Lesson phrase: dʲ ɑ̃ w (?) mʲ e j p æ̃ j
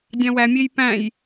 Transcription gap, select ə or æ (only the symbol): æ